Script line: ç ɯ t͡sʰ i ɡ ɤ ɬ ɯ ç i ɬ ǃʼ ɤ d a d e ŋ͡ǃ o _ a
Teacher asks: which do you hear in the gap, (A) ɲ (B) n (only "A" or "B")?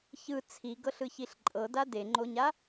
A